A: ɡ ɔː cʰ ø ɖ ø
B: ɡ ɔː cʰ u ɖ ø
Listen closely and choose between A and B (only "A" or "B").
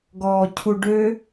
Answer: B